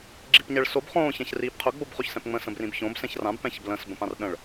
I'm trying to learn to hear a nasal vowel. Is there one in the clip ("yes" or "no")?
yes